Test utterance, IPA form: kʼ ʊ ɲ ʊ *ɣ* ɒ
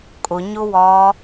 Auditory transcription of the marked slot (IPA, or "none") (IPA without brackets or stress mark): w